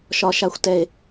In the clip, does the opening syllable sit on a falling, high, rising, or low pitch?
low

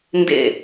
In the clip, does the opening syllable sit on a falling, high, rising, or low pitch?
falling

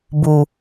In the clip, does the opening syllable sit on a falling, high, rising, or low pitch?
low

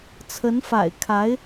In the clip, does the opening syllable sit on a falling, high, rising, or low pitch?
rising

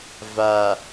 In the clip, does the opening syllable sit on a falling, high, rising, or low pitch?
low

